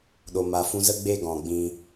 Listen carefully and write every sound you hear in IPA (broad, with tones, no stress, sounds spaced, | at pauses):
ɗ o˨ m a˨ f ũ˧ z ə˦ ɡ͡b e˦ ɡ ɔ̃˨ ɡ͡b ĩ˧